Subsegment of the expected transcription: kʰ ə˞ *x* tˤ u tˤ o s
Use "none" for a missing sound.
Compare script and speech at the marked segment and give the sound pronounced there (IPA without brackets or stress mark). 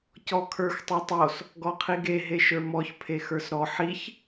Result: x